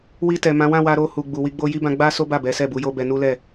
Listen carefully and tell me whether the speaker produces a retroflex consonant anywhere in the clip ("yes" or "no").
no